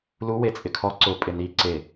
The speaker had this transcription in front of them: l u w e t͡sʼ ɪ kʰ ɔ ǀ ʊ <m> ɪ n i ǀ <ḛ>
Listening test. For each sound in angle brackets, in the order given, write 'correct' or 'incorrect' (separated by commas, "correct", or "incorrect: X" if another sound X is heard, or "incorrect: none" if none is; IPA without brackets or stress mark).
incorrect: pʼ, incorrect: e